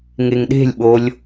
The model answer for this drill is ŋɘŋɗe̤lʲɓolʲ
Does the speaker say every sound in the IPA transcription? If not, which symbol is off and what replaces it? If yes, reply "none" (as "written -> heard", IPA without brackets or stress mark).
ɘ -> e